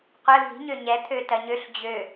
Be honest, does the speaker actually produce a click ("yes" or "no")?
no